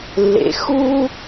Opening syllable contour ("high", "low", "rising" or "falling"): low